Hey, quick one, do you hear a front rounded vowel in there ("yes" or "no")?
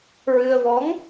no